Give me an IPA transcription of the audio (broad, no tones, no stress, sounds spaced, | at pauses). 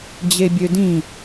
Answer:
d͡ʑ e bʲ ø d ĩ